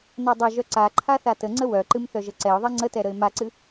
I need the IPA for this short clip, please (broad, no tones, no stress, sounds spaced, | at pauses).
n a dˤ ɐ ʒ œ ǀ a ǃʰ a θ a t ə ŋ͡ǀ ə w œ ǃ ɨ m θ œ ʒ ə ǀ ɛ ʊ̯ ðˤ ɛ ŋ͡ǀ ə t ɛ ɾ ə ɪ̯ m a ǀ ɨ